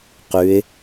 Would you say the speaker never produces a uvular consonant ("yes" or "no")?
no